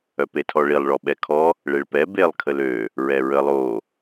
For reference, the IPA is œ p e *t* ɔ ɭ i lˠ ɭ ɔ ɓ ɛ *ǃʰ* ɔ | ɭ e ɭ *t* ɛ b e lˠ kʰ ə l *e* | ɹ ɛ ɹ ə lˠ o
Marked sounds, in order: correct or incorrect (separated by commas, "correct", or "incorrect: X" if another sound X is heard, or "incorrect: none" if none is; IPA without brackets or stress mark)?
incorrect: tʰ, incorrect: kʰ, incorrect: p, incorrect: ø